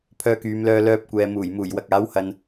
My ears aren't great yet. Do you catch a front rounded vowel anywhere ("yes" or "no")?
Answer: yes